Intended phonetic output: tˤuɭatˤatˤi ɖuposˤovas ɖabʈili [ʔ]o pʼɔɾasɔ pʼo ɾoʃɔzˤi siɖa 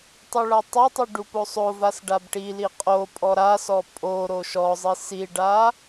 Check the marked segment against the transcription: incorrect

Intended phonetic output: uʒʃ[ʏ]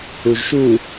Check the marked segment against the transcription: incorrect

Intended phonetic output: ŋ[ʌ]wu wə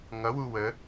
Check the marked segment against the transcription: correct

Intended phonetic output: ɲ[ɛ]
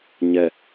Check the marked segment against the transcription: correct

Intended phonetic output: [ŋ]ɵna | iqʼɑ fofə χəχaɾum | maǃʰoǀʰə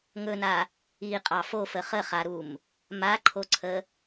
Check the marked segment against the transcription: correct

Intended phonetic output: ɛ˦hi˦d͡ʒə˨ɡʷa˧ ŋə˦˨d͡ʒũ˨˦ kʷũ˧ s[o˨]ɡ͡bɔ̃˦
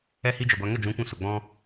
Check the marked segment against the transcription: correct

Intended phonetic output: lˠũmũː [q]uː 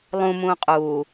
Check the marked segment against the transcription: incorrect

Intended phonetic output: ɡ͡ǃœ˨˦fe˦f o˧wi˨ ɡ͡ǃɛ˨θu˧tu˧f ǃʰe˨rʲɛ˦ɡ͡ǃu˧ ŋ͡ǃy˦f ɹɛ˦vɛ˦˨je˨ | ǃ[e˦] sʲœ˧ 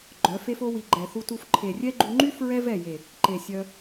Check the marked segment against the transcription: incorrect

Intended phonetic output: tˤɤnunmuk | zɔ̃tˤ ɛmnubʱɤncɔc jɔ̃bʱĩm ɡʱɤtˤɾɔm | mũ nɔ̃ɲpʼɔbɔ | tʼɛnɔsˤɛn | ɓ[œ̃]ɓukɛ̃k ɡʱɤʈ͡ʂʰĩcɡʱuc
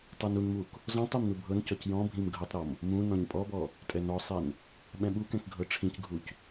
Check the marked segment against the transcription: incorrect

